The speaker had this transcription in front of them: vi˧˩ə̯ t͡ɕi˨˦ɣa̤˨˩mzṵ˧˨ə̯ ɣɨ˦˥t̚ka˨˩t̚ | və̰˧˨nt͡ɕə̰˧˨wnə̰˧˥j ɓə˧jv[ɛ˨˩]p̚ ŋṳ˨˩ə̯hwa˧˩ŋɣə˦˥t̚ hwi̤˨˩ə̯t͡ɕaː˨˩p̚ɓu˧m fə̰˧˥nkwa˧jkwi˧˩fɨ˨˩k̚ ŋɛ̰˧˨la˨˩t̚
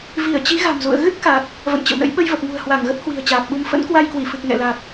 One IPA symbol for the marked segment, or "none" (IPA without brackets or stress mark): ə˨˩